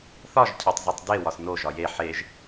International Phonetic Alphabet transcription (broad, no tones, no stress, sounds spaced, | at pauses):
θ ɒ ʒ cʰ æ tˤ z o tˤ d e w ɒ s n o ʒ ɒ j e ħ e ʒ